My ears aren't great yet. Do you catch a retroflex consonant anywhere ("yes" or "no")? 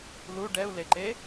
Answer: yes